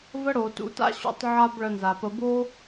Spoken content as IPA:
v ə˦ ɽ o˨ t ṵ˨˦ t a̰˦ ɕ ṵ˧ tˤ ʕ a˦ b ɭ ə˧ n z a˨ p ə˧ b o˦

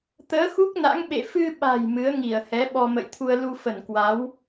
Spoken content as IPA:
t̪ əː˨˦ x u˦˥ k̚ n a̰˧˥ ŋ ɓ ḛ˧˨ f ɨ˧ ɓ a̤˨˩ j m ɨ˨˦ ə̯ ŋ i˧˩ ə̯ h ɛ˨˦ ɓ ɔ˧ m ə̰˧˨ j t̪ʰ u˧ ə̯ l u˧ f ə˧˩ n k w a˨˦ w

